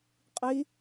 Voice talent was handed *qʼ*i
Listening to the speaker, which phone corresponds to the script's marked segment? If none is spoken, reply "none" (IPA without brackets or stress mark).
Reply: qʼ